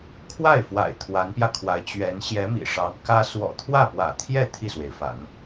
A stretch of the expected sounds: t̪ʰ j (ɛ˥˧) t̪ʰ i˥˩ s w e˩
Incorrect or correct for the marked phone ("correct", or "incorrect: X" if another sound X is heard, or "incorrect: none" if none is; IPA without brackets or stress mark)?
correct